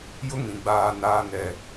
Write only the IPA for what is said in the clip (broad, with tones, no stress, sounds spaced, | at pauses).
j ʊ˦ ŋ ĩ˨ ɡ͡b aː˨ n aː˨ n ɛ˨